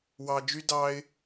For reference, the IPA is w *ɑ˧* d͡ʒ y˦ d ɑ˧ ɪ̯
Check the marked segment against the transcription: correct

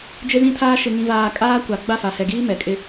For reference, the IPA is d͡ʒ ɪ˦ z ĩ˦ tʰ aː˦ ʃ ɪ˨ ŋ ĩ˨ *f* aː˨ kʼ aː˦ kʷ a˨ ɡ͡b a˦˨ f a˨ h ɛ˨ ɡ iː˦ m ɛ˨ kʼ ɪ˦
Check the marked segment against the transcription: incorrect: v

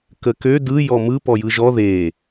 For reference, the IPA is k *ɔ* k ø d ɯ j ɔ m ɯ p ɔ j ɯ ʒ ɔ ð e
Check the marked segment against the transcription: incorrect: ə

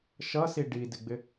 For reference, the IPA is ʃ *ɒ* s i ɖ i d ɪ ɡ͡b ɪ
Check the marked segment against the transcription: incorrect: ʌ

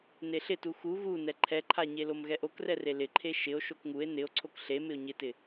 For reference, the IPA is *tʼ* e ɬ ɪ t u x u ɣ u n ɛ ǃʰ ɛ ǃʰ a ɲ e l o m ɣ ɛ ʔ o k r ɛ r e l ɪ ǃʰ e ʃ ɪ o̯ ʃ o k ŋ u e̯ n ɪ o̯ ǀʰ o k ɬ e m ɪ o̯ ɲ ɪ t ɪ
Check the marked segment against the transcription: incorrect: n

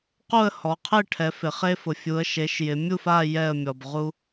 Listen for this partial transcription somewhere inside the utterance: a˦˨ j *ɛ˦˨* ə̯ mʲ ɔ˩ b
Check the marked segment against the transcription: correct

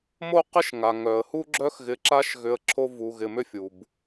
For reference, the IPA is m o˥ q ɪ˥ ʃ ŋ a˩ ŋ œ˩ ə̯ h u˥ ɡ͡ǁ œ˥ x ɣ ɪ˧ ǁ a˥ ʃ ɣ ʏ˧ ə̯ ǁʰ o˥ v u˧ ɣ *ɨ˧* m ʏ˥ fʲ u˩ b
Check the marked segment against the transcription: incorrect: ɪ˧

